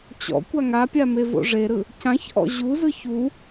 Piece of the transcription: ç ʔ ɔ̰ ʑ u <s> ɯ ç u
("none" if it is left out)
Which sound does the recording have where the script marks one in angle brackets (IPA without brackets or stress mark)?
z